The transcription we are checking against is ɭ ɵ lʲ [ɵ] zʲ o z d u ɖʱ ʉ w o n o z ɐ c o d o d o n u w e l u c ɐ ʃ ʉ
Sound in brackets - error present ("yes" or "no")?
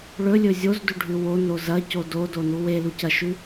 no